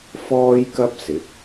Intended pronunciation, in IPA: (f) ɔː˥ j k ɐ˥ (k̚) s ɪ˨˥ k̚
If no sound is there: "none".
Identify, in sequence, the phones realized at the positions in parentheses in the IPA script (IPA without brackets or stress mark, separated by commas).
f, p̚